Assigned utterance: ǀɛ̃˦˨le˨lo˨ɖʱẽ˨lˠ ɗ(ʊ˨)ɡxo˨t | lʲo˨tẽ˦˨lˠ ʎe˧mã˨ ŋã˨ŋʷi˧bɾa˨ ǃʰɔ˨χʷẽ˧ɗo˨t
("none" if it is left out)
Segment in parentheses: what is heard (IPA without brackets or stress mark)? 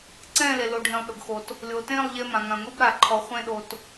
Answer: ʊ˨